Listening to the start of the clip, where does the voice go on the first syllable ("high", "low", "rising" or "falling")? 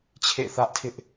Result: falling